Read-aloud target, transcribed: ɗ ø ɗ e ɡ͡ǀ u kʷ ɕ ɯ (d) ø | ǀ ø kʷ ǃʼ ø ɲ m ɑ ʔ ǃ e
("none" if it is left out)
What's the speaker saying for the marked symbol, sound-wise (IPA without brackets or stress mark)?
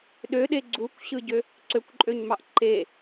ɟ